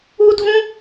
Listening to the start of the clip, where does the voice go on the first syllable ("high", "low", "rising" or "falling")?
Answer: high